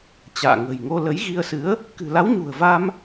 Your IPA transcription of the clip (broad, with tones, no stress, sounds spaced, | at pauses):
t͡ɕ a̰ː˧˨ ŋ ə̤˨˩ j ŋ o˧ l ə˨˦ j ɣ i˧ ə̯ s ɨ˨˦ ə̯ | k ɨ̤˨˩ l a˨˦ w ɲ ṳ˨˩ ə̯ v a˧ m